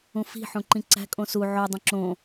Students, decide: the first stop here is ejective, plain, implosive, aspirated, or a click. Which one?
click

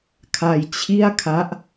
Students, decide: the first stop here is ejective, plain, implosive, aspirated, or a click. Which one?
aspirated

